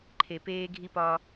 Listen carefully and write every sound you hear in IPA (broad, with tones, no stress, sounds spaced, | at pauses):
ǃʰ e˨ p eː˦ ɡʱ i˦ p ɒ˦